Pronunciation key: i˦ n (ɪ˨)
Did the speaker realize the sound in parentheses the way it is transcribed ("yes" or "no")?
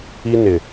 yes